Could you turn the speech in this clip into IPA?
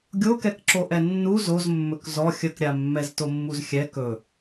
ɡʲ o k ɛ k ǁ o ʔ ɛ nː u z o z mː ɵ k z ɔ xʲ ə k ɾʲ a mː ɛ z t o mː u z xʲ ɛ k ɵ

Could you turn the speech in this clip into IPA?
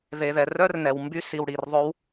ð e˨ ð ɛ˨ r œ˦˥ r n ɛ˨ w m b y˦˥ s i˨ w ɽ i˨ r ðˤ ɵ˦˥ w

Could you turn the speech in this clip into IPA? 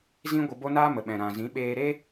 z ĩ˦ ɡʷ ə˧ b o˦ n aː˦ m ə˨ ɓ ɛ̃˨ ɾ ã˨ z ĩ˨˦ ɓ eː˧ ɾ e˦

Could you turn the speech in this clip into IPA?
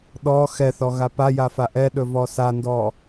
ɗ ɔ x ɛ θ ɔ ɣ a p a j a f a ʔ ɛ ɗ ɵ v ɔ s a n d ɔ

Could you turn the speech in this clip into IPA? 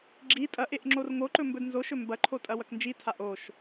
ɡ͡ǁ i tʼ ɐ ʔ e ʔ ŋ͡ǁ o r ŋ o ǃ ɵ m b ɵ d n z o ʃ ɵ m b ɐ ǃʰ o tʼ ɐ w ɐ k n d͡ʒ i tʰ a ʔ o ʃ

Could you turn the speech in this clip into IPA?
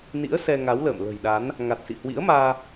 n ḭ˧˥ ə̯ s ɛ˧ ŋ a˨˦ w l ə̰ː˧˨ m l ə̤˨˩ j ɗ a˨˦ n | ŋ a˨˩ t̚ s ḭ˧˨ h w ḭ˧˥ ə̯ m aː˧

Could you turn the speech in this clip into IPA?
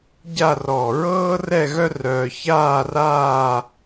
ɟ a˥˧ r ɔ˧˩ ɹ ɤː˥ r ɛ˥˧ ɣ œ˥ r œː˧ ç aː˥˧ r aː˥˧

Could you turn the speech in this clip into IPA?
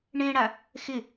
ɳ ẽ ɽ a | x ɪ

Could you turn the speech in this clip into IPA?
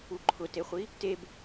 u ǃʰ ʊ t e χʷ i | t e b

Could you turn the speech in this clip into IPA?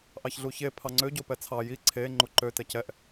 ʔ ɑ ç ɮ u ç e pʰ ɑ ŋ͡ǀ ø ɟ o p ɛ t͡sʰ ɑ j i ǀʰ e ŋ͡ǃ u ǃ ø t ɛ c ɛ ʔ

